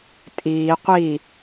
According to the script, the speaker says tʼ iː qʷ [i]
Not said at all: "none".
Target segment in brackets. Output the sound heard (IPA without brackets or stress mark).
i